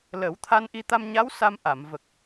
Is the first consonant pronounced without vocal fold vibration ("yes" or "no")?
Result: no